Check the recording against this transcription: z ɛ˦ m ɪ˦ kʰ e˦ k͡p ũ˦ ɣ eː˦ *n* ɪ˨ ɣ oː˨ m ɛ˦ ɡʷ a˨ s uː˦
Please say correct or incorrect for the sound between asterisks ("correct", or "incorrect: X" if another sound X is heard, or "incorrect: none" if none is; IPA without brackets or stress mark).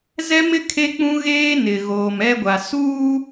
correct